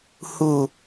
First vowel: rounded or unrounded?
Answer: rounded